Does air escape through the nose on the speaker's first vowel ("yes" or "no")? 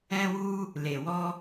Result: yes